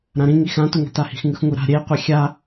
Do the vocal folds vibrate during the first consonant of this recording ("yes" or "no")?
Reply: yes